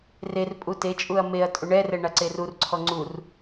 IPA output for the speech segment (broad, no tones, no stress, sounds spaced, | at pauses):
r e r pʼ u t e t͡ʃʼ u ɐ̯ m e ɐ̯ tʼ u ɳ ɛ r ɛ ɳ a ǀ e r u r ǀʰ ɔ ŋ͡ǀ u r